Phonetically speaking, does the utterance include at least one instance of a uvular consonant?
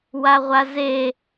yes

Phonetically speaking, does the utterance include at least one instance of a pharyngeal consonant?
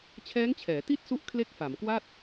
no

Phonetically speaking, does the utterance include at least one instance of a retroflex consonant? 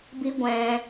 no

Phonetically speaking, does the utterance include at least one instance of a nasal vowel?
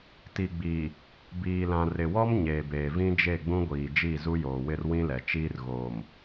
yes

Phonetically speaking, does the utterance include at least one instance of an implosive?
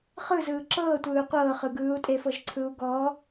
no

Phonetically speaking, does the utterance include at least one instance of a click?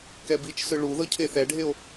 no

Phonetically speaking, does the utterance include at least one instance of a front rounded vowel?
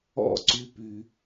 yes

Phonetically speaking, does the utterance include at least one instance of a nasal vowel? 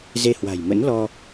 no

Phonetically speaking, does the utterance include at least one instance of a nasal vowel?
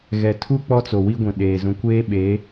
yes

